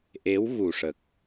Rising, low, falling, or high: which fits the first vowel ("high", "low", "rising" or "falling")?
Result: rising